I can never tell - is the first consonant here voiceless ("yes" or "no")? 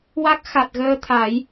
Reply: no